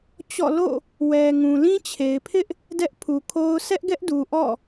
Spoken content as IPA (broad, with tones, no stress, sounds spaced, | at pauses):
t͡ɕ ɔ̰˦˨ l o̰˦˨ | w ɛ˨ ŋ ũ˨ l ĩ˦ t͡ɕʰ e˨ ɪ̯ pʰ ɪ˦ ʔ | d ɛ˦ ʔ pʰ u˨ kʰ o˦ ʊ̯ sʰ ɛ˦ ʔ ɡ ɛ˦ ʔ d u˨ ʔ ɔ̰˦˨